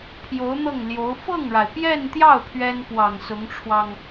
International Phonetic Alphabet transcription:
pʰ j o˧˥ ʊ̯ n̪ ɤ˥˩ ŋ l j o˧˥ ʊ̯ f ɤ˥˩ ŋ ɻ a˩ ɪ̯ p j ɛ˥˧ n t̪ j ɑ˥˩ ʊ̯ pʰ ɥ ɛ˥ n p w ɑ˨˩ ŋ s ʊ˧˥ ŋ ʈ͡ʂʰ w ɑ˧ ŋ

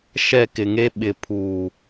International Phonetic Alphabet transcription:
ʃ ɛ˦˨ k ɪ˨ ŋ e˦ ɓ ɪ˨ pʰ uː˨

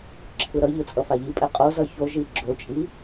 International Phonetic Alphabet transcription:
ǁʰ ɯ ɾ ʌ ʎ ɯ t͡sʼ ʌ f a ʎ i pʼ ɛ qʼ o z ʌ ç o ʒ i ɡ͡ǁ o t͡ʃʼ i

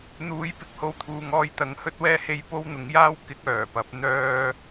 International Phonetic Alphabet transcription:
n̪ uː˨˧ j p ɪ˨ k̚ h o˧ w t̪ʰ uː˨ ŋ ɔː˧ j t̪ ɐ˨˧ ŋ h ɵ˥ t̚ w ɛː˥ h e˧ j p o˥ w n̪ ʊ˨˥ ŋ j aː˥ w k ɪ˥ k̚ œː˨˩ p ɐ˨˥ p̚ n̪ œː˥

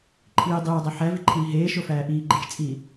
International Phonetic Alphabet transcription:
ǃʰ iː dˤ eː dˤ æ ħ æ v i ǃʰ iː ɦ eː ʃ o f æː ʔ iː ɡ͡ǃ e t͡ʃ t͡sʼ iː

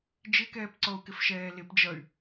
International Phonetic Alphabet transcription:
d͡ʒ ɪ k ɛː p ǀ ɔ u̯ k ɪ f ʃ ɛː l ɪ p d͡ʒ ʌ y̯

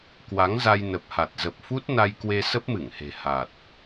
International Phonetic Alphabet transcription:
k w a˨˦ ŋ z a˧ j n ə˨˩ p̚ h a˨˩ t̚ z ə˨˩ p̚ f u˦˥ t̚ n a˧ j k w e˧ s ə˦˥ p̚ m ɨ˧˩ ŋ h e̤˨˩ h a˨˩ t̚

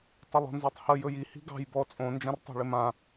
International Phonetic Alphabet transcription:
tˤ ə lˠ ɔ̤ n z ɔ tˤ h ə j ɵ j i h i̤ ɡ ɑ̤ j b ɔ t͡sʼ õ n d͡ʒ ã r tˤ æ̤ ɭ ɪ m ã

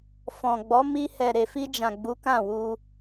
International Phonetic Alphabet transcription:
f ɔ̃˨ ɡ͡b ɔ˨˦ m i˧ h ɛ˨ ɾ e˨ f i˧ d͡ʒ ã˨ ɡ͡b u˨˦ k ã˦˨ w u˧

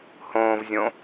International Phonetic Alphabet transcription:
h õː v zʲ õ

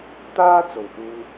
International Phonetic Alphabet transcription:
t̪ aː˥ t͡s o˨ w h uː˧

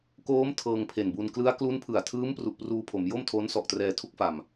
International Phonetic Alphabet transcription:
k oː˦˥ m tʰ ɤː˧ ŋ pʰ e˨˩ n b u˧ n k l ɯ˦˥ a̯ k l u˦˥ n pʰ ɯ˨˩ a̯ tʰ ɯː˦˥ m p r u˨˩ ʔ p r uː˧ pʰ o˩˦ m j o˥˩ m tʰ o˦˥ n s ɔ˨˩ ʔ t r ɛː˧ tʰ u˥˩ k̚ f a˨˩ m

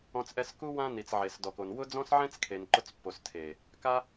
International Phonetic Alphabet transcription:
ɔ̃˧ t͡s ʔ ɛ˧ s k u˦ w ã˧ n i˨ t͡s ʕ e˨ s d ɔ˨ k o˨ n w ʊ˦ d͡z ɔ̃˦ s ʕ ɛ̃˦ t͡s kʰ e˨ n ǃ ʊ˧ t͡s pː o˨ s tʰ e˨ | k a˦

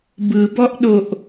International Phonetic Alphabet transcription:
b ɯ b ɔ ʔ ɗ o ʔ

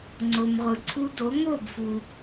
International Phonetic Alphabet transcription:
ŋ͡ǀ o˩ m ʁʷ ɯ˩ ǀʰ u˧ d o˩˥ ŋ o˥˩ b f u˩

